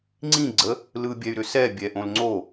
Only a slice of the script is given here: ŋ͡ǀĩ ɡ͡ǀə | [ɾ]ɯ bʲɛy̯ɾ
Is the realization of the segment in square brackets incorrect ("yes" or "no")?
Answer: yes